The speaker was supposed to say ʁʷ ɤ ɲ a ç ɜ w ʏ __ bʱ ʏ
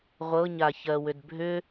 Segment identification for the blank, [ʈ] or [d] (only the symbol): d